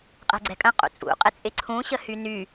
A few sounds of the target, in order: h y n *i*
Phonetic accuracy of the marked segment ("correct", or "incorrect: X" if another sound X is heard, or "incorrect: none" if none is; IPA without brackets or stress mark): incorrect: y